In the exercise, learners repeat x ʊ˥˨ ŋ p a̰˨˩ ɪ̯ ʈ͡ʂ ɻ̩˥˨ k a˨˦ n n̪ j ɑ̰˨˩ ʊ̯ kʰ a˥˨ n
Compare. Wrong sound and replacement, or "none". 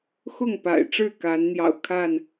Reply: none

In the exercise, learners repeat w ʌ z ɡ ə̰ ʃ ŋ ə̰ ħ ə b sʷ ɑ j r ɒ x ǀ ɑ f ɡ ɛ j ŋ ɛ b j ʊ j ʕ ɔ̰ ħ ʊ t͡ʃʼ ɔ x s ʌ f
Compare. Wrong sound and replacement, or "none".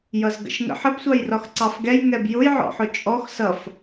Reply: w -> j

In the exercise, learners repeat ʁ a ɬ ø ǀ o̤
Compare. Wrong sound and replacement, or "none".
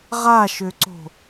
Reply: ɬ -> ʃ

